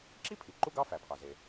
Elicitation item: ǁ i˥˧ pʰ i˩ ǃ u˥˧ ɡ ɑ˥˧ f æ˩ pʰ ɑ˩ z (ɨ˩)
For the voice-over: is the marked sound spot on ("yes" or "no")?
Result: no